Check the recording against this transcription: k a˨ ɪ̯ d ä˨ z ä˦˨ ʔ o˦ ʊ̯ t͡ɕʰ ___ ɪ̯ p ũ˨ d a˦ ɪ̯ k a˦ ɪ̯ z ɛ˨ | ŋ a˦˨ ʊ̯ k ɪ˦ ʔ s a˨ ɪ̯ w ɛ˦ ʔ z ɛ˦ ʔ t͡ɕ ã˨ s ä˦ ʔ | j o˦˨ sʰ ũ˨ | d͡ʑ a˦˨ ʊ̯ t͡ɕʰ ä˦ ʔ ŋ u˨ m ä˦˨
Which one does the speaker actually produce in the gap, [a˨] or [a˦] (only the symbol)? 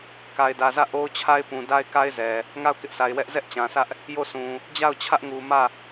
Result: a˦